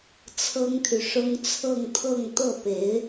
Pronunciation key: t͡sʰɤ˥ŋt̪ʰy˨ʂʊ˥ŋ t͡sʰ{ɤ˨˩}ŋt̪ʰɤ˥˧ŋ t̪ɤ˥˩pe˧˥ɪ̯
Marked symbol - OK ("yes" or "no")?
no